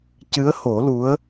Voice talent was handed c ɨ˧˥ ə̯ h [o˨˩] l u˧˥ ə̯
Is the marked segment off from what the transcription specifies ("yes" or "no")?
yes